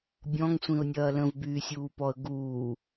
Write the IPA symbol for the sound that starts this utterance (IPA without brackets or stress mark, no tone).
bʲ